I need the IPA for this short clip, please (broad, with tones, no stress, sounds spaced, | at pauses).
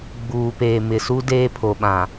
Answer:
ɡ͡b uː˨ p eː˨ m ɪ˨ s u˦ d eː˦ pʰ o˨ ɓ ã˨